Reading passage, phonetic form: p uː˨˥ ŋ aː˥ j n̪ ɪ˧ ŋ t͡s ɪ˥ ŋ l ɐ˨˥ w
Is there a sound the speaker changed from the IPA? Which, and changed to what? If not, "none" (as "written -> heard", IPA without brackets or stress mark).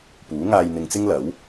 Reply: aː˥ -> aː˧